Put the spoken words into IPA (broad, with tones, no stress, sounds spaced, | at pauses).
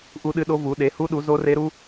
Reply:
ʔ u˦˥ ɗ ɨ˦˥ ɗ o˦˥ v u˨˦ ɗ e˨˦ h u˦˥ ɗ u˨˦ z o˦˥ r e˦˥ ɾ u˦˥